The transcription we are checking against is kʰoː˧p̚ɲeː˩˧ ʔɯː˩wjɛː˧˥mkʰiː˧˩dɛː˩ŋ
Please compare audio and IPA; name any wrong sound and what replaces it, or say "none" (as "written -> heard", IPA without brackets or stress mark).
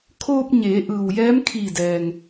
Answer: none